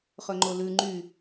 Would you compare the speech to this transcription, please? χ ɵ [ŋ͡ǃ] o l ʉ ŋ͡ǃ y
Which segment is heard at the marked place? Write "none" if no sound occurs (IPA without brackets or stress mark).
ŋ͡ǃ